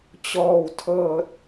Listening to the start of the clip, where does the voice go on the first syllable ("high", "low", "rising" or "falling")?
low